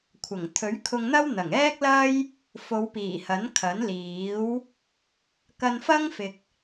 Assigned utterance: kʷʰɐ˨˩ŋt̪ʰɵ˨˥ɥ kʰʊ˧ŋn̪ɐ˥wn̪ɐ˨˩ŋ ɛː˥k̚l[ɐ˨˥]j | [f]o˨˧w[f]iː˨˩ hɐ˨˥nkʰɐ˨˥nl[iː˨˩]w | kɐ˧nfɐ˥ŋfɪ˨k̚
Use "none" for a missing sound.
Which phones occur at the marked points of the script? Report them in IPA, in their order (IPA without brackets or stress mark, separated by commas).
ɐ˥, f, p, iː˨˥